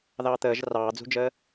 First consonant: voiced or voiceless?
voiced